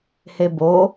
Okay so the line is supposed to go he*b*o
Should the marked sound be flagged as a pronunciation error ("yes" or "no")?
no